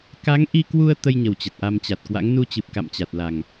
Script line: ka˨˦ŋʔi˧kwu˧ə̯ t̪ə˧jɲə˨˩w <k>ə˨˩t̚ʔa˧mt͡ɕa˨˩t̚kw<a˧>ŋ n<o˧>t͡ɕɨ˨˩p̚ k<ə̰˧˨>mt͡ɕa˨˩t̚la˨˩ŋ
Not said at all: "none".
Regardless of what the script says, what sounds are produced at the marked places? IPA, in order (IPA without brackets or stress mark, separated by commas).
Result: t͡ɕ, a̰˧˥, u˧, a̰˧˨